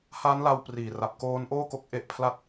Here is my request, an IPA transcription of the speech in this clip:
h a˦˥ n l a˧ w p r iː˨˩ r a˨˩ p̚ k oː˦˥ n ʔ oː˥˩ k o˦˥ k̚ ʔ e˦˥ ʔ pʰ l a˥˩ t̚

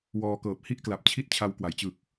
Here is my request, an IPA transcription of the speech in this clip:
w ɔː˧ k ɤː˨˩ p̚ h i˥˩ ʔ k l a˨˩ p̚ t͡ɕʰ i˥˩ t̚ t͡ɕʰ a˦˥ w k w a˩˦ j t͡ɕ ɯ˨˩ k̚

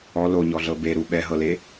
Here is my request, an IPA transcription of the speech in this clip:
ɔ l o ɲ ɔ ɮ ɤ b e ɾ u ɓ ɛ ɦ ɤ l e

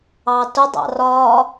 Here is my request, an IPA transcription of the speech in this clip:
ɑ t ʊ dˤ ɑ̰ r ɒ

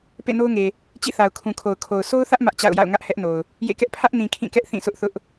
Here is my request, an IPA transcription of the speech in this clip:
p ḛ˦˨ n o˦ ʊ̯ ŋ e˨ | t͡ɕ ḭ˦˨ θ a˨ ʊ̯ kʰ ũ˨ kʰ o˨ ʊ̯ kʰ o˨ ʊ̯ sʰ o˦ ʊ̯ θ ä˦ ʔ m ä˦ ʔ t͡ɕ a̰˦˨ ʊ̯ j a̰˦˨ ʊ̯ ŋ ä˦ ʔ h ɛ˦ ʔ n o˨ ʊ̯ | j ḛ˦˨ k ɛ˦ ʔ pʰ ä˦ ʔ n ĩ˨ kʰ ĩ˦˨ k ɛ˦ ʔ θ ĩ˦˨ sʰ ʊ˦ ʔ θ ʊ˦ ʔ

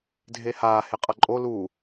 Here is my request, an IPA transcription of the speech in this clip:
dʱ e h aː h e qʼ ʌ ǃʼ o l u

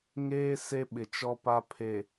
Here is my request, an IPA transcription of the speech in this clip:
ŋ eː˦ s e˦ ɓ ɪ˨ t͡ʃ ɔ˦ p a˦ pʰ e˨

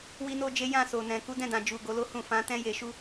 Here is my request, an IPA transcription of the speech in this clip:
w i˦ n o˦ d͡ʒ e˦ j ã˦˨ s o˨ n ɛ̃˨ k u˨˦ d ɛ̃˦˨ d ã˨ d͡ʒ u˨ ɡ o˨˦ l o˦ h ũ˦˨ f ã˨˦ t ɛ̃˦ j e˧ ʃ u˦

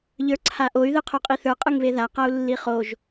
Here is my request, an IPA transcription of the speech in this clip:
ʎ ə˞ ǀʰ a ʔ o y̯ ð ɯ qʰ o qʼ i θ ə˞ qʼ ɯ ŋ β e ð a q a u̯ lː i χ o ʒ

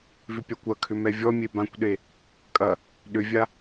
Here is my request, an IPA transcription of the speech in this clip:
v ʏ pʲ a kʷ ɐ kʰ ʏ m ɛ vʲ ɔ mʲ e b ã kʷ ɗ e | kʼ ɐ | ɗ ʏ vʲ a

